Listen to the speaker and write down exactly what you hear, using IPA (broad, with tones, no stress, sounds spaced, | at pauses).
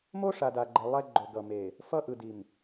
m o˦ ʂ a˨ d a˨ ɡ͡ǃ ɛ˨ lˠ ɛ˦ ɡ͡ǃ o˨ ɡ ʌ˨ m e˨ | f ʌ˦ ʔ ɯ˨ d i˨ m